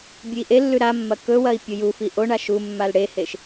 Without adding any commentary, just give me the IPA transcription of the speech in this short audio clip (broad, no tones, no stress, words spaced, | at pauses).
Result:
bʲʉi̯ʔelːʉ ɾamːɐ kɵwɐi̯ pʲujufi ʔoɳa ʃumːal ɽeheʃ